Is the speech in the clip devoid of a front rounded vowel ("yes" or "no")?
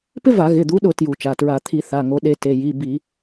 yes